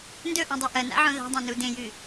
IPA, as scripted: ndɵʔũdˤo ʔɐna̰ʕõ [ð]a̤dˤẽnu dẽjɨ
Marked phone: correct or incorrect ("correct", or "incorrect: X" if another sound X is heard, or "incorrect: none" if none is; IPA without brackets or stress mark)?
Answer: correct